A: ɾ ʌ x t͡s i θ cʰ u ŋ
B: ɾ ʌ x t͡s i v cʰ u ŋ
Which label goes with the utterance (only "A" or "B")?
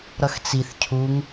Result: A